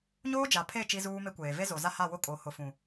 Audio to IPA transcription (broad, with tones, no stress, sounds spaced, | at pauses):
ɲ oː˦ d͡ʒ a˨ pʰ e˦˨ t͡ʃ i˦ z uː˦ m e˦ kʷ eː˨ v e˦ z o˨ z a˦ h a˦˨ w ʊ˦ kʼ o˨˦ h ʊ˨ f ũ˨